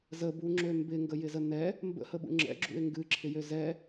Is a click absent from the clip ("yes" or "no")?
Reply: no